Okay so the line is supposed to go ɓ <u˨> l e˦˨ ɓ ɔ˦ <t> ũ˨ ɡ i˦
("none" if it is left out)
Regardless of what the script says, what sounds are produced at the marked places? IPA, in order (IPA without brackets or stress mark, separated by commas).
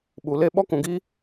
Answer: u˨, k